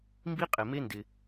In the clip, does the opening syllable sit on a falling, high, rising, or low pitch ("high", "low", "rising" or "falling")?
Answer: high